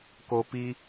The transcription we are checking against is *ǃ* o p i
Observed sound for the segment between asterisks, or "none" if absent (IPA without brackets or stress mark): k